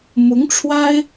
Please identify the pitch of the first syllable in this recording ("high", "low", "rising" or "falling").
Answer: rising